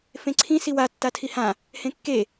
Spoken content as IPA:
f ẽ ǀʰ ĩ s i w a tː a tʰ i h ã | h ẽ kː e

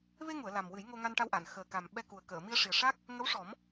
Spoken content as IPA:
v e˧ ŋ u˨˩˨ ə̯ l a˨˩ m w ɨ˨˩˦ j ŋ o˧ ŋ a˧ n ʈ a˧ w ʔ a˨˩˨ n x əː˨˩ k a˨˩ m ɓ ɛ˧ k u˨˩ ə̯ k əː˨˩˨ m i˧ ə̯ ʂ i˨˩ ə̯ ʂ a˦˥ k̚ | ŋ ə˧˥ w ʂ ɔ˨˩˦ m

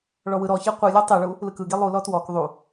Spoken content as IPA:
ɭ ɔ w ɯ ɾ ɔ ç e qʷ ɯ lʲ ɔ tˤ e ɭ u | l ɯ k ɯ ɡ i lˠ u l ɔ t w ɔ k ðˤ u

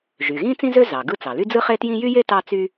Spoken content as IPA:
ʒ y˩ ɣ ĩ˥ t͡s ĩ˥ z ø˥ z ɑ˩ ɡ ɯ˥ t͡s ɑ˩ l y˥ d͡z ɯ˥ χ e˥ t j ĩ˥ j y˥ j e˥ t ɑ˥ t͡s y˥

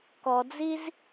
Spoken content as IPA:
k ɔ d͡z i z

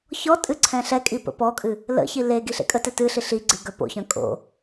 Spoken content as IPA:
ç ɔ tʼ ɨ ǀʰ ɛ̃ ɬ ɛ kʼ i p ə̰ p ɔ kʼ ɨ | l ə̰ ç i l e ɡ i ɬ ḛ kʼ ə t ɛ t ɨ ɬ i ɬ i ɡ͡ǀ ɨ ɡ œ p o̰ ç œ̃ kʼ o̰

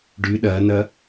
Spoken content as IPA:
ɖ y ɗ ɐː n ɐ

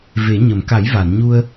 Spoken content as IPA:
v e˨˩˦ ɲ ə˨˩˨ m k a˨˩˦ j v a˨˩˨ n ɲ u˧ ə̯

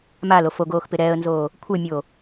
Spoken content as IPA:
m a l o f o ɡ oː x p ɪ ɾ ɛ ə̯ n z oː | kʷʰ e mʲ oː

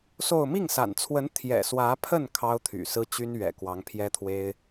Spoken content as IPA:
s o˥˧ ʊ̯ m i˥˩ ŋ s a̰˨˩ n t͡sʰ w ə˧˥ n t̪ʰ j ɛ̰˨˩ s w ä˧˥ pʰ ə˥˩ n kʰ ɑ˥ ʊ̯ t̪ʰ y̰˨˩ s ɹ̩˥ t͡ɕ y˥ n ɥ ɛ̰˨˩ k w ɑ˧˥ ŋ pʰ j ɛ˥ t̪ʰ w e˥ ɪ̯

